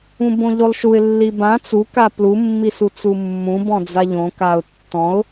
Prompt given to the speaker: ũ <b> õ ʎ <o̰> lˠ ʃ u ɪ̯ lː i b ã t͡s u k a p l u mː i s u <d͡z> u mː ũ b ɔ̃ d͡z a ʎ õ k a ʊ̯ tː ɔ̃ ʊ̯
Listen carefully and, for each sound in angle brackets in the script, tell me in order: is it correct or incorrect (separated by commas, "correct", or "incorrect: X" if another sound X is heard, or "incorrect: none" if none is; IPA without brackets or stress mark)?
correct, incorrect: o, incorrect: t͡s